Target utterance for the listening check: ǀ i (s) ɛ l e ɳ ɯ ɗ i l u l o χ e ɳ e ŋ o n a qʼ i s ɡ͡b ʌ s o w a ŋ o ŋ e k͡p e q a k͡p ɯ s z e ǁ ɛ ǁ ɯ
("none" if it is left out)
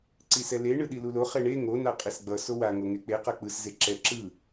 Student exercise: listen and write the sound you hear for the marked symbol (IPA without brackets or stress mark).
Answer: s